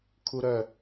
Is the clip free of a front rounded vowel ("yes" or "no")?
no